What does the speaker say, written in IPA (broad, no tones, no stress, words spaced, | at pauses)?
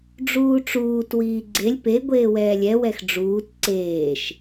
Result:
ɖ͡ʐuːʈ͡ʂuːt wiːɡ͡ǀelʲ pe ɡʷeːwɛːlʲɛ wɛxɖ͡ʐuːt ǀeːʃ